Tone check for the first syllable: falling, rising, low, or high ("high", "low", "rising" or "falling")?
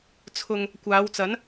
low